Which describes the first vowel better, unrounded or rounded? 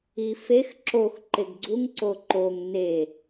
unrounded